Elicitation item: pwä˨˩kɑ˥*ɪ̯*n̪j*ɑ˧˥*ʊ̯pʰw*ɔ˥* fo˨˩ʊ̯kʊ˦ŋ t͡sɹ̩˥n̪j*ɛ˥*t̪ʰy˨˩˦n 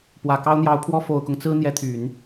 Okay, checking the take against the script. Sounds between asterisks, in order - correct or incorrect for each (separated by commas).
incorrect, correct, correct, incorrect